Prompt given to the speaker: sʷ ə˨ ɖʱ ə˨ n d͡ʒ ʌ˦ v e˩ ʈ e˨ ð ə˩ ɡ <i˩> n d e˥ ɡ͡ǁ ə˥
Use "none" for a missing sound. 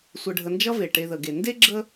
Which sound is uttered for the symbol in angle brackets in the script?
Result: e˩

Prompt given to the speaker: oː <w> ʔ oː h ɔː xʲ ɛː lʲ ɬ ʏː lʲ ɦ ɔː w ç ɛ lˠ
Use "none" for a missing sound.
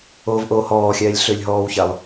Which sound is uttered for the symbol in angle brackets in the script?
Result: v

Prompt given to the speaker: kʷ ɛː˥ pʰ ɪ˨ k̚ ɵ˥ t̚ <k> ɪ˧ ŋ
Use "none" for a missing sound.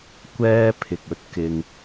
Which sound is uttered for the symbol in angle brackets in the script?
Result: k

